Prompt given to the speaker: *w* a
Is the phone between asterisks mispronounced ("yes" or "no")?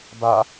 yes